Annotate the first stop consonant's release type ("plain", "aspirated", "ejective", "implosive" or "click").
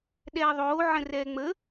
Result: implosive